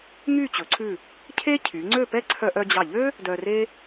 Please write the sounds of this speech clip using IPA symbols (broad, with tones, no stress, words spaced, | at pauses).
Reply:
ŋy˥˧ t͡ɕɵ˩˧ǀʰʉ˧˩ | cʰe˥cʰy˩˧ŋ͡ǀø˥˧pɛ˥ ǀʰœ˧ʔœ˧d͡ʑɑ˧˩ʎø˥ | dœ˧re˥